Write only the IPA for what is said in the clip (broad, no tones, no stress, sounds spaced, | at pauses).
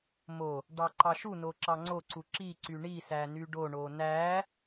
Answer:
m o | ɖ ɑ ǃ ɑ ʃ u n o ǁ ɑ ŋ͡ǀ o ǀ u ǁ i ǀ y ɳ i s æ n y ɖ o ɳ o n æ